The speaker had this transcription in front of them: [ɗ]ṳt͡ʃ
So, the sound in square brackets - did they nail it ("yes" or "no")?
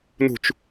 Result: no